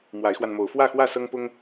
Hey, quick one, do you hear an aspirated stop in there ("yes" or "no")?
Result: no